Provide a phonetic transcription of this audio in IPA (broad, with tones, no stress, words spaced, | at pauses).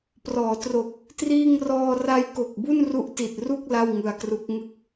prɔː˩˦ tro˨˩k̚ | triː˥˩ŋ rɔː˧ra˦˥jko˨˩k̚ bu˥˩nru˦˥ʔti˨˩t̚ru˥˩k̚ la˥˩wŋɯ˧a̯kru˦˥k̚ ŋɯ˦˥k̚